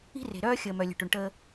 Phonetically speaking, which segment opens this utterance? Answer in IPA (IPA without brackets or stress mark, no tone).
i̤